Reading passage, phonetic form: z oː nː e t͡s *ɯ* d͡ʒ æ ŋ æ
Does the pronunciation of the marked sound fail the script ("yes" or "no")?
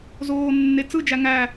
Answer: no